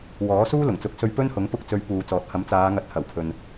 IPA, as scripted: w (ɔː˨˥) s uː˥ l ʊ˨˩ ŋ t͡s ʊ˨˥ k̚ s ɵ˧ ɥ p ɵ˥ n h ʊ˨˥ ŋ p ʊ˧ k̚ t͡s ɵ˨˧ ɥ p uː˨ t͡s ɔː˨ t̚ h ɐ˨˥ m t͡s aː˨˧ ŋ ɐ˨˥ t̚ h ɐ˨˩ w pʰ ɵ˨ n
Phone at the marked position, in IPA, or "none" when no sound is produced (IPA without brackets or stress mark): ɔː˨˥